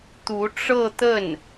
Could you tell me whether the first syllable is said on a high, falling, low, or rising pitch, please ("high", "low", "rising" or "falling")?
rising